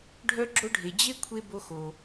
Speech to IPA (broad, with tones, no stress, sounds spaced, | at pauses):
ɖʱ œ˦ ɡ͡ǁ o˦ ɖʱ e˨ d͡ʑ e˥ kʷʰ e˥ b o˦ x o˨